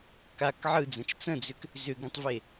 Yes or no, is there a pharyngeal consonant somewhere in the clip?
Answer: yes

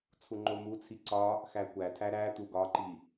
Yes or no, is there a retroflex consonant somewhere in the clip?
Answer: no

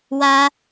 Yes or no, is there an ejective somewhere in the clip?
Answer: no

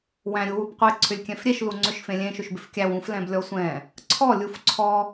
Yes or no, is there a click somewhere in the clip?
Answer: yes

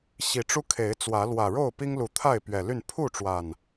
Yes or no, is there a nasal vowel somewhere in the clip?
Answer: no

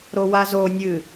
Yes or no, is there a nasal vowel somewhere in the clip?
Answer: no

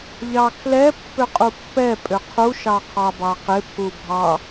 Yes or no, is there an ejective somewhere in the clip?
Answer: yes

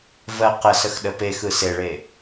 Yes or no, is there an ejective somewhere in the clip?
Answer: no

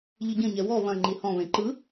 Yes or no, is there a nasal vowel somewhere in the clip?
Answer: yes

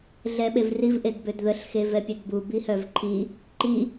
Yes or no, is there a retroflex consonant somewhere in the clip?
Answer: no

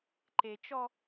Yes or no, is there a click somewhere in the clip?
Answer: yes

